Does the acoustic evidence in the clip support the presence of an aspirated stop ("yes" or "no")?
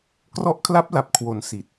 yes